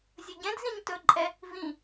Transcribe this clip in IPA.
zʲɵɟɛ̃dzĩɲ tɵǃʼɛ | vĩ

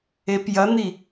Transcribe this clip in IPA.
epjɐn̪i

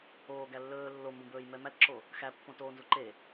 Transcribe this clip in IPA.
oː ɡælːɵː lːombõbɵːj mɛmætǁo | xæpːõ toːnzuǃe

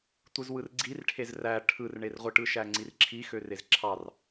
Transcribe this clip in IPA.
tʷɯzwɯrɡ͡ǀirʈʰez ræ ʈʰɯrɳerʁʷɯʈɯ ʃæŋ͡ǀirǁʰi xørezǁʰɑr

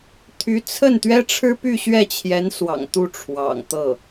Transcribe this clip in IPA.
t̪ʰy˧˥t͡sʰə˥˩n t̪ɥɛ˥ʈ͡ʂʰɻ̩˥ py˥˧ɕɥɛ˥˩t͡ɕʰjɛ˧˥nswɑ̰˨˩ŋ t̪u˥˩ʈ͡ʂʰwɑ̰˨˩ŋt̪ɤ˥˩

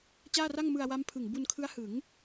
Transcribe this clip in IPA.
t͡ɕaː˥˩ra˥˩ŋ mɯ˧a̯wa˦˥mpʰɯ˨˩ŋ bu˧nkʰɯ˦˥a̯hɯ˩˦ŋ

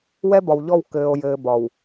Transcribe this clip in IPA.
wɛ˦bɒ˨wʎɔ˦˨w kɘː˨o̯jɘː˨ bɒ˨w

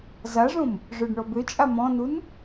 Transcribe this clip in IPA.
zaʐõm | ʐœɖɳɔbøt͡ʃʼa mɔ̃nun

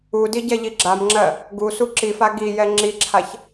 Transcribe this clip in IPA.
udi ɟɛʎiɡ͡ǁamŋ͡ǁɜ | ɡusu ǁifa ɡijɛ ŋ͡ǁiǁʰaç

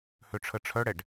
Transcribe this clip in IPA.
høʈ͡ʂʰəʈ͡ʂʰœɽɛɖ

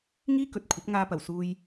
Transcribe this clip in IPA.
ŋiː˥kɵ˨t̚kʷʰɐ˨˥p̚ ŋaː˧pɐ˨˩wsuː˧j

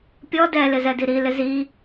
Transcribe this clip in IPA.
pʲɔ dɛlɪzɛdi ɾilɪ zi

